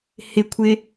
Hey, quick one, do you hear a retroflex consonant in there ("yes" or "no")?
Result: no